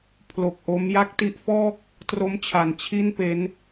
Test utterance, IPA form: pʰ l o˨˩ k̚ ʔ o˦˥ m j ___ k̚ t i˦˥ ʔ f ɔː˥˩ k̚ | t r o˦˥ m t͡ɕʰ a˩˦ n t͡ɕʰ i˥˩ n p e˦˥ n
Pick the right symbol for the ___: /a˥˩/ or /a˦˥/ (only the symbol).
a˦˥